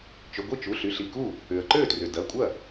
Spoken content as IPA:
t͡ʃʏ˩˧˩ɡʷi˥˩t͡ʃu˩˧˩ɬy˩˧˩ɬ i˥˩ku˥˩ | ʏ˩ə̯ǃø˥˩trʏ˩ dɐ˩˧˩ kʷʼɐ˥˩

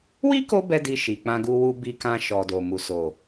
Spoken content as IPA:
wi˦ko˧ bɛ˦di˧ ʃi˨k͡pã˧ɡu˧ wu˦bi˦ kã˧ʃɔ˨do˨mu˨ so˨

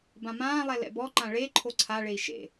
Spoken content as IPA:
bãmãːlˠɛ lɛ̰bɔǃã ɭe ǃʰoǀʰaɭei̯ ʃḛ

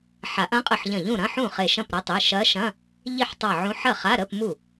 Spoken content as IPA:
ħa˨˩˦ʔɐ̃˧˥qʼə˧˩ħ ʎɐ̃˧˩ʎũ˥˩ɾɐ̃˧˥˧ ħũ˥˩χe˧˩ʃɐ̃˥˩pɾɐ˧˥ tˤe˩˧˩ʃɐ˧˥ʃɐ̃˧˥˧ | ʎi˥˩ħtˤa˧˩ʕũ˧˥ ħɐ˥˩χa˧˥˧ɾə˧˥˧pmu˥˩

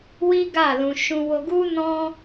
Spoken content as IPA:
wi˦ɡa˦˨lũ˧ ʃũ˧wo˧ɡu˦ nɔ̃˧

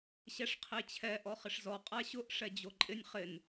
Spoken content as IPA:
ɕɛʂqʰet͡ɕʰɛ ʔɔχɪʂzɔ qʼaɕʊʔ ʂɛd͡ʑoǃʼɪnʲ χɪn

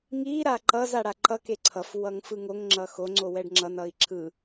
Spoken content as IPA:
ŋi ɾaǃʌz aɽaǃʌ keǀʰʌf wʌŋfɯŋoŋ ŋ͡ǁʌxo ŋ͡ǀowɛɖŋ͡ǁʌn ʌi̯ǁʰɯ

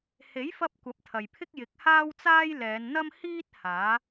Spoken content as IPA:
he˨˥jfɐ˧p̚ kʷɐ˨˥p̚t̪ʰɐ˨jpʰɪ˥k̚ jɪ˨˥k̚haː˥wt͡saː˥j lɛː˨˧nn̪ɐ˥m hiː˥t̚ haː˨˥

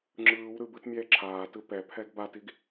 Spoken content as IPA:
ŋ͡ǁɯːw ɾɯbɯt mʲɛːǁʰaːtɯ pɛpʰɛɡ batiɡ

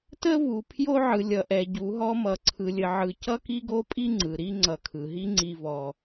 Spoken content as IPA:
tə˦vu˨ pʰjo˦ʕɯ˨ lʲʌ˨ʔɛ˨ɟu˨˦ɦɔ˦ mʌ˦ǀʰɯ˦lʲə˦ʕɯ˦ cʌ˦ki˦ɡo˦pʼi˦ ŋ͡ǀɯ˨ɾi˦ ŋ͡ǀʌ˨kʰɯ˨ɦi˦ ŋ͡ǀi˦vɔ˦

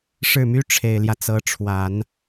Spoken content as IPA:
ʂɻ̩˥˩my˥ ʈ͡ʂʰe˨˩ɪ̯ljä˦ t͡sɤ˧˥ʈ͡ʂʰwa˨˩˦n

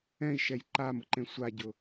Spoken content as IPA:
ɛ̃i̯ʃɛj ǃamʊǃẽ sʷaɟʊ

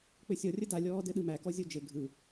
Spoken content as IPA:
k͡pɘsʲɔ rʲəda lʲɔːdɘɗɯmæ kɔzʲod͡ʒɘ ɡʱɯ

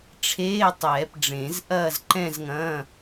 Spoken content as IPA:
ʈ͡ʂʰeː˧˥˧tˤɛː˨˩˦pɖ͡ʐẽ˨˩˦z ʔɐː˥˧z ǃɛ̃˥˧zŋɐ̃˧˥˧

